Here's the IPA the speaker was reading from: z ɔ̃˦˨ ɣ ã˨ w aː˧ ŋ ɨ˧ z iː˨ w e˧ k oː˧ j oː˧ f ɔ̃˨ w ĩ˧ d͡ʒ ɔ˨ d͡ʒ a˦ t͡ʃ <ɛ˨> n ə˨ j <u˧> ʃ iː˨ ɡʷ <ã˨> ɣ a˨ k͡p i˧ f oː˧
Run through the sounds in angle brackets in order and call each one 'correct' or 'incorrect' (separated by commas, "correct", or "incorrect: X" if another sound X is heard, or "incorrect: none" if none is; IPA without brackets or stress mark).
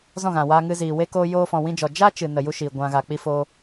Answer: incorrect: ɨ˨, correct, correct